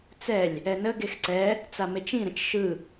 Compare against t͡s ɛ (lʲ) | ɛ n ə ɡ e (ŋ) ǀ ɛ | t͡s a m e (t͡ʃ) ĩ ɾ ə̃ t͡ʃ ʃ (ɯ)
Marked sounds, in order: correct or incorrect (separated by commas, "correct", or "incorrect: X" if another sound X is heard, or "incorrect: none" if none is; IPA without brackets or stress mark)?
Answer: correct, incorrect: x, correct, correct